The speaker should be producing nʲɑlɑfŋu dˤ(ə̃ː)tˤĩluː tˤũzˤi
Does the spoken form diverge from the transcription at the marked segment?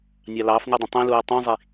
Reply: yes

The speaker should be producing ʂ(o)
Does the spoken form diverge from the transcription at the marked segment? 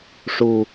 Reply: yes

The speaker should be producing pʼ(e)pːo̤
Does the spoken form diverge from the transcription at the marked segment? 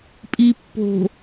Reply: yes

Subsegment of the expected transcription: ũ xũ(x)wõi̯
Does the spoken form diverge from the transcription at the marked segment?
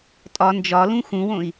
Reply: yes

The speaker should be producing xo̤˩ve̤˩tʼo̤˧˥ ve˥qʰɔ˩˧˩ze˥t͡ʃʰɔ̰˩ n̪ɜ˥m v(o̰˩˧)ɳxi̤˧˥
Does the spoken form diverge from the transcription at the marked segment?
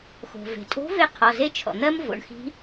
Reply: no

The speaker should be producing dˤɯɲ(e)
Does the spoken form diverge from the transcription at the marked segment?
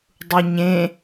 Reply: yes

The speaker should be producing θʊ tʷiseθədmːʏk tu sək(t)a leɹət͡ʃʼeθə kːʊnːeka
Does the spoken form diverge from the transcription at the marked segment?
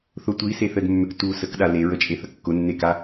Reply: yes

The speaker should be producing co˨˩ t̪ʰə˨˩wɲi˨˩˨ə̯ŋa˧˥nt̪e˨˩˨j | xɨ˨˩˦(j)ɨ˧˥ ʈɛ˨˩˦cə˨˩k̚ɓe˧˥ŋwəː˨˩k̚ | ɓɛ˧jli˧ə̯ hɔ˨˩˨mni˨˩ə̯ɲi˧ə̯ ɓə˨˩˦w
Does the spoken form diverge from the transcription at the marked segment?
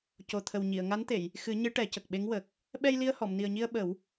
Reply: yes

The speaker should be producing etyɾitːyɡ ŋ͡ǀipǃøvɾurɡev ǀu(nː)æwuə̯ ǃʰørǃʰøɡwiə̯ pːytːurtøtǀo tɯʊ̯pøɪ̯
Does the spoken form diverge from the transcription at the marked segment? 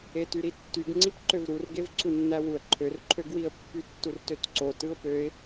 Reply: no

